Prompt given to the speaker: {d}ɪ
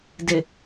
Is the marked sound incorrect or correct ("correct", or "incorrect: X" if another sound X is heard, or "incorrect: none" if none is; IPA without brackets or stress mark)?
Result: correct